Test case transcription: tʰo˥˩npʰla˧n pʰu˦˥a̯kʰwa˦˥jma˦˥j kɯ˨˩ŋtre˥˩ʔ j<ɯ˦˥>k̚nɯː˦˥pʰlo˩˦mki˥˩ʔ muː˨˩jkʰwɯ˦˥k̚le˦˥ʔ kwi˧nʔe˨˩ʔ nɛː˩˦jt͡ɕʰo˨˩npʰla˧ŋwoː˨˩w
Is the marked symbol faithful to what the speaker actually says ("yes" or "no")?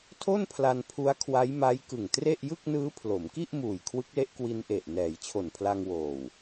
no